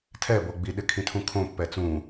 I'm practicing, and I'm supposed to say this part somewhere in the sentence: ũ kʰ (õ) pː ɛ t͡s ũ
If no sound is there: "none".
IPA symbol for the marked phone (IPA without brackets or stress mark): õ